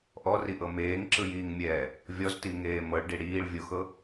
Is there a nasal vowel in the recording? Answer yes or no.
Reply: no